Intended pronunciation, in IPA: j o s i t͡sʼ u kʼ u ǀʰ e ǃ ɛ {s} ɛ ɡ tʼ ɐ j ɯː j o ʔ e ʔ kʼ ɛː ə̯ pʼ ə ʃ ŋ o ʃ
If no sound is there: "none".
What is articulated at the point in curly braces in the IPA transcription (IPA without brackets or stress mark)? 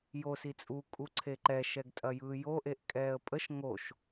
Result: ʃ